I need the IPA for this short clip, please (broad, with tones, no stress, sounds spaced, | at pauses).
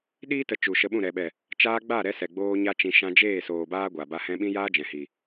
ɗ iː˧ t ə˨ t͡ʃ u˨ ʃ ə˧ ɓ ũ˦˨ ɾ ɛ˨ ɓ ɛ˨ | t͡ʃ aː˦ ɡ͡b a˦˨ ɾ ɛ˧ s ɛ˨ ɡ͡b oː˦ ɲ a˦ t͡ʃ ĩ˧ ʃ ã˧ d͡ʒ eː˦˨ s oː˨ b aː˧ ɡʷ a˨ b a˧ h ɛ̃˧ ɓ ĩ˦ j aː˦ d͡ʒ ɛ̃˨ h i˨